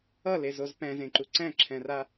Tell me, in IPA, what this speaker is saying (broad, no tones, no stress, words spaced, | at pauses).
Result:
ʌlezoz pɛ̃zẽǃu ǀɛ̃ǁʰɛ̃ra